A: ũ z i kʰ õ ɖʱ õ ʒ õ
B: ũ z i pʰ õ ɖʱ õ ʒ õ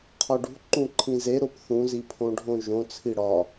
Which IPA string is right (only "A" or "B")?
B